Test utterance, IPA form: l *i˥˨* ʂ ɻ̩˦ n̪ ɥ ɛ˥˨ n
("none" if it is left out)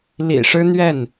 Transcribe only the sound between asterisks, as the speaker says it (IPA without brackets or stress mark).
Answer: ḭ˨˩